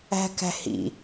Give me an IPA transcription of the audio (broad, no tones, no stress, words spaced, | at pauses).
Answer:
æ̤kæ̤hḭ